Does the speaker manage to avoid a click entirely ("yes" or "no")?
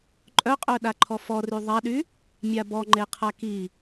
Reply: no